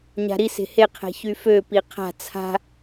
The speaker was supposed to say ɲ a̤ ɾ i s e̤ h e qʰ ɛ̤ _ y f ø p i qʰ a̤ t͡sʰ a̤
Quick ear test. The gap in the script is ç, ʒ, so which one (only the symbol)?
ç